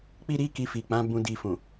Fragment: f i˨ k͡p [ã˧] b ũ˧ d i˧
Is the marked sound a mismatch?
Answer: yes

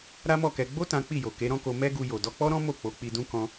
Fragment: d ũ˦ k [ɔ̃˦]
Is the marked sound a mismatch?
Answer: no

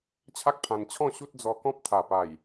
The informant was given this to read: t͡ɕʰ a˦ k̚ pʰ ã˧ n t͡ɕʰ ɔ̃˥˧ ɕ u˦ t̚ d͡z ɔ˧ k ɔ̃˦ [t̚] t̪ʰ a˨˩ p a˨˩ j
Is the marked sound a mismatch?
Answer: yes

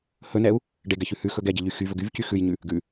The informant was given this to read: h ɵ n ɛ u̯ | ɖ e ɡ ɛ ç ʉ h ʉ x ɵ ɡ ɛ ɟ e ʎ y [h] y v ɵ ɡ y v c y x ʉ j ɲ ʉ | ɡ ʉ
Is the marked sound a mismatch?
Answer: yes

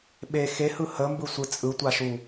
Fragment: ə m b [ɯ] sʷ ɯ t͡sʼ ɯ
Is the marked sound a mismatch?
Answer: no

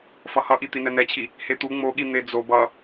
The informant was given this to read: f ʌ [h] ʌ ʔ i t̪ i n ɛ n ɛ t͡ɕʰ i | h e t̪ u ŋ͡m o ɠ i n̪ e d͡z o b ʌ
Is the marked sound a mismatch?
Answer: no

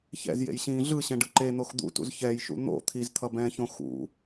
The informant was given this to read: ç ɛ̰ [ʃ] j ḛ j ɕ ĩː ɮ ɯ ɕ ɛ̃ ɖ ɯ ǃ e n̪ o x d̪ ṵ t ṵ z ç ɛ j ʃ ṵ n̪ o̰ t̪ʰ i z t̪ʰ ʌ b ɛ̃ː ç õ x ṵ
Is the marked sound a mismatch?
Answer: yes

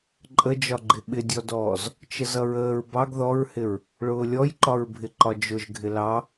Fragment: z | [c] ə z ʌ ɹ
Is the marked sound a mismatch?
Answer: yes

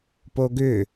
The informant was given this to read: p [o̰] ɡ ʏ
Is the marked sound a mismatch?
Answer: yes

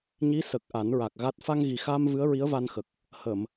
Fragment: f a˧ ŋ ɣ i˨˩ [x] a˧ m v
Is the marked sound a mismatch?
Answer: no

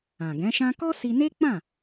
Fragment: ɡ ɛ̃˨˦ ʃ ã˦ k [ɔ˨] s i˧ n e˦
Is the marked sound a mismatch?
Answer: yes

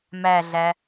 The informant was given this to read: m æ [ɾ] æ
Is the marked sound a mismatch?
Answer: yes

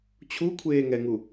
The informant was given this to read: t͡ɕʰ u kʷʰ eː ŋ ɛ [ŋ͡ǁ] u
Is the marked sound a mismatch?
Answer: yes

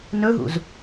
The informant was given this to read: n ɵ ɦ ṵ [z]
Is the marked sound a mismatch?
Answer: no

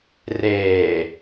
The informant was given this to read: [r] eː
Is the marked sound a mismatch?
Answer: no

